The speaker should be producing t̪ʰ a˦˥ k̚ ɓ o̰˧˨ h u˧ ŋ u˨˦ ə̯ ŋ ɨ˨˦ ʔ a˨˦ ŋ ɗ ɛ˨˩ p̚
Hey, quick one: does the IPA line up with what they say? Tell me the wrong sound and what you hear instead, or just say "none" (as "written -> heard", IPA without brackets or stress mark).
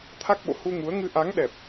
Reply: none